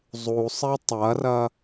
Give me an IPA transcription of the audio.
zˤ u sˤ e tˤ ɐ r ɐ

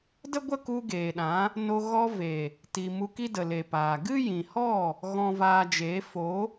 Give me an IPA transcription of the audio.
d ə˦ ɡʷ ə˦ k u˧ ɡ eː˨ ɗ ã˨˦ | n o˧ ɣ ɔ˧ v e˨ | t i˨ m u˧ k i˦ d ə˨ l e˨ p aː˨ ɡ ɨ˦ j ĩ˨ h ɔ˦˨ | ɣ ɔ̃˨ v aː˨ d͡ʒ eː˨˦ f o˨˦

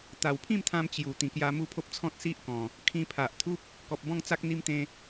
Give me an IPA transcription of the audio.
t̪ a˨˩ w pʰ ĩ˥˧ m t̪ʰ ã˧ m t͡ɕ j u˨˩ t̪ ĩ˨˩ k j a˧ m u˥˧ pʰ o˦ p̚ t͡sʰ ɔ̃˦ t̚ s i˦ ʔ k ɔ̃˨˩ | kʰ ĩ˧ pʰ a˨ ʔ t̪ʰ u˦ p̚ | k ɔ˨ p̚ b ɔ̃˥˧ ŋ t͡s a˦ k̚ n̪ i˦ m t̪ ẽ˦

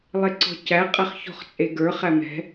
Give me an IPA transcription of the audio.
lˠ e ǀ ɔ̤ c æ qʼ æ χ ç ɔ̤ χ t͡sʼ e ɡ ə˞ χ æ m ɛ̤

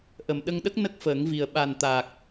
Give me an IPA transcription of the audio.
ʔ ə˨˩ m ɗ ə˧ ŋ ɗ ə˦˥ k̚ n ə˦˥ k̚ f əː˨˩˦ ŋ v i˨˩ ə̯ ɓ a˨˩ n t̪ a˨˩ k̚

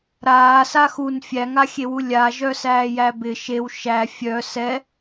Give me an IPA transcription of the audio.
ɾ aː s a x u n fʲ æ ŋ a xʲ e w u lʲ a ʒ œ s æː j æ b ɪ ʃ e w ʃ æ fʲ œ s ɛ

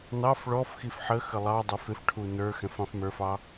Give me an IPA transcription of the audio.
n ɑ f ɭ ɔ f x i f ħ ə x ə lˠ ɑ dˤ ə˞ f ɪ f ʈʰ u n ə˞ x ɛ̃ f ɑ̃ f m ə˞ f ɑ

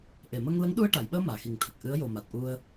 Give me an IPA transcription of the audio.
ʔ e˨˩˨ m ə˧ ŋ l ə˧˥ ŋ ɗ u˧ ə̯ ʈ a˨˩˨ j ɓ əː˧ m aː˨˩˨ x i˨˩ ŋ t̪ʰ ə˨˩ k̚ ʔ ɨ˧˥ ə̯ j o˨˩ m a˨˩ t̚ ʔ u˧ ə̯

